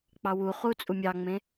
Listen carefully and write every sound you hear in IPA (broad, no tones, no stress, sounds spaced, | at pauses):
k͡p ɑ w u χ u t͡sʼ u mʲ ɑ ŋ͡m ẽ